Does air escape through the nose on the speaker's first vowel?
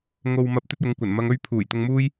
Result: no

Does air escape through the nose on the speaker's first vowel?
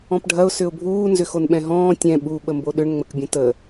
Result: yes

